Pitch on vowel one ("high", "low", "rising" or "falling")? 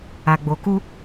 low